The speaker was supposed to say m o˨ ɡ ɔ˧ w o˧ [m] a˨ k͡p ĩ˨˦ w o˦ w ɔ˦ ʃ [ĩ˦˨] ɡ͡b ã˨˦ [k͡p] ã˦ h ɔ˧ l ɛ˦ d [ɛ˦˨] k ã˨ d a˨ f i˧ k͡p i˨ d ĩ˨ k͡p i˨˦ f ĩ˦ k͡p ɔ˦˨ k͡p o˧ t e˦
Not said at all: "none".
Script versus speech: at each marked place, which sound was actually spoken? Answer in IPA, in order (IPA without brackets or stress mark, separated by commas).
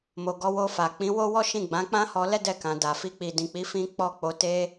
f, ĩ˦˨, k͡p, ɛ˦˨